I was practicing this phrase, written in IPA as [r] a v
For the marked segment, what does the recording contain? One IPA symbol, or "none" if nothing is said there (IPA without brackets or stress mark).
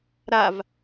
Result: ɾ